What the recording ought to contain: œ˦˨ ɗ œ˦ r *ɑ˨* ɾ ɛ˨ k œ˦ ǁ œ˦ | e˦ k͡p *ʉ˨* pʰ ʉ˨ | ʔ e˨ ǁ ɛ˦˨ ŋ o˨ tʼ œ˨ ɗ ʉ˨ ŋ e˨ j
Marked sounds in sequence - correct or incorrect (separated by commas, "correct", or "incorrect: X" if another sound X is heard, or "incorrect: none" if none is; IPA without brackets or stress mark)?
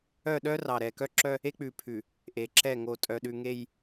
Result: correct, correct